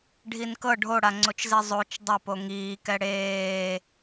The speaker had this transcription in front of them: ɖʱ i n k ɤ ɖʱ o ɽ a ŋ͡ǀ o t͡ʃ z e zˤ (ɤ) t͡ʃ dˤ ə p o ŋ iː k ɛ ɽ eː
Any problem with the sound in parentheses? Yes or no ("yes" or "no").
yes